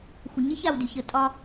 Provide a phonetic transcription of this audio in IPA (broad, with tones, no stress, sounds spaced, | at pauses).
xʷ ə˨ ɲ e˦ ç a˨ w d y˨ ç ə˨ tʼ ɒ˦